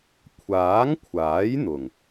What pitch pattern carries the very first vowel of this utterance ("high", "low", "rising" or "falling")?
rising